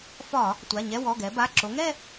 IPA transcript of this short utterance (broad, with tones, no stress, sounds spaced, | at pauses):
f ɒ˧˩˧ | tʷ a˩˧˩ ɲ ɛ˧˥˧ w ɔ˩˧˩ ɡ ɛ˩˧ b a˩˧˩ ǁ o˩˧ ŋ ɛ˥˧